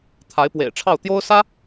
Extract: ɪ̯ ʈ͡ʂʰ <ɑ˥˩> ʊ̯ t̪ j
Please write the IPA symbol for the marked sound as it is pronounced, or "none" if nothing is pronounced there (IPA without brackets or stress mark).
ɑ˥˩